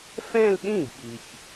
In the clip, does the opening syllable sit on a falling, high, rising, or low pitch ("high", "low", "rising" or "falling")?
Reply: falling